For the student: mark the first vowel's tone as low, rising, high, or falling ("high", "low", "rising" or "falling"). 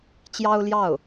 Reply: high